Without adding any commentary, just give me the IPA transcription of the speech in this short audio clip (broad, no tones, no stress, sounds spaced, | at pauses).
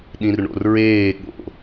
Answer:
ɗ ĩ r ɳ o̰ r ɹ eː ɠ o̰